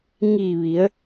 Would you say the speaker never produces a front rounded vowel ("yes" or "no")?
yes